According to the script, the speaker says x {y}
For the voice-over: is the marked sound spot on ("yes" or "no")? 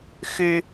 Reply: yes